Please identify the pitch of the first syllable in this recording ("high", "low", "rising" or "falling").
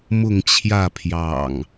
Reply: falling